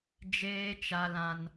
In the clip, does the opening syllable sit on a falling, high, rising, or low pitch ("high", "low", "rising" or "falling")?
high